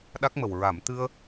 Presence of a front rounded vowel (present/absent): absent